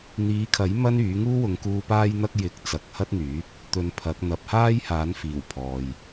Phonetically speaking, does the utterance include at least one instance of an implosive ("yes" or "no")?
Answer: no